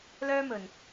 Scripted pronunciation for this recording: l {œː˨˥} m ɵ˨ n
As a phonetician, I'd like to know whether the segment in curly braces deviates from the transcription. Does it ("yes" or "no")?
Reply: yes